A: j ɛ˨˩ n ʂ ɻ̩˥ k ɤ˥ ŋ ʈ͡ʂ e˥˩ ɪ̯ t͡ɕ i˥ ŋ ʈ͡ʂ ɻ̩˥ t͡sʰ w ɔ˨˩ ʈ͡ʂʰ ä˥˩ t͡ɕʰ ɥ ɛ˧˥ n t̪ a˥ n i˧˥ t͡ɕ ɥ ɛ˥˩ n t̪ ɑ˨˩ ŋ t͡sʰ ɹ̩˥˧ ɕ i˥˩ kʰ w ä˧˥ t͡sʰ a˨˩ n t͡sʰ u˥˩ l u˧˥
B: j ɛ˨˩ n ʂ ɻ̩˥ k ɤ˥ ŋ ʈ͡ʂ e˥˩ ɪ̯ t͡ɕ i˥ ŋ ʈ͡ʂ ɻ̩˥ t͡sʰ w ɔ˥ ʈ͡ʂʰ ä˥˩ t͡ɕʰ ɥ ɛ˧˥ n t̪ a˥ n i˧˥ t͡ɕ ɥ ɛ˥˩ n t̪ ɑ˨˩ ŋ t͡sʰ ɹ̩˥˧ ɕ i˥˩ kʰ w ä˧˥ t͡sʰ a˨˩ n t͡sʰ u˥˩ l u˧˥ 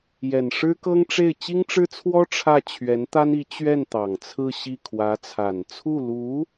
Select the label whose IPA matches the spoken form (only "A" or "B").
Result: B